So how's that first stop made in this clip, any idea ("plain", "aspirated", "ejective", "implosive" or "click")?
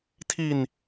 aspirated